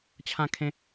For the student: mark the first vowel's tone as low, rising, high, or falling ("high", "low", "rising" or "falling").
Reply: high